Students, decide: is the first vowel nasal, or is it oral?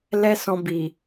oral